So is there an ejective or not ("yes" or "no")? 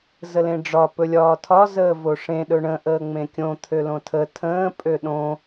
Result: yes